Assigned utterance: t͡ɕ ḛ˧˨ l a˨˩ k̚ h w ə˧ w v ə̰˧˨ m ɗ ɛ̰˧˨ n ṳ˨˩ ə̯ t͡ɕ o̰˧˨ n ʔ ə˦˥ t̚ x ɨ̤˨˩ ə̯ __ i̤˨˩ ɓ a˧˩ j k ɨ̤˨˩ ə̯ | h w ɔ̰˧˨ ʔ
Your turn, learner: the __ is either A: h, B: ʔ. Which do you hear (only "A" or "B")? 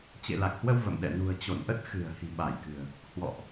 A